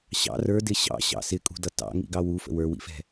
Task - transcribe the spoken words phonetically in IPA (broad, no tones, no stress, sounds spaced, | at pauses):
ɕ ɑ̰ r ə˞ d ɪ ɕ ɑ̰ ɕ ɑ̰ s ɪ kʼ ṳ d ʌ t ɑ̰ ŋ ḭ ɡ ɑ w u f ə̰ w ə˞ w ḭ f ɛ̤